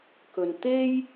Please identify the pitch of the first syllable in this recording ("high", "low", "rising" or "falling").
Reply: low